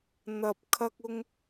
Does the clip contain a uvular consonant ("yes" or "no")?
no